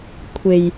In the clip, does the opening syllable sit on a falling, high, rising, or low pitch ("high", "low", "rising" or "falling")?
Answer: low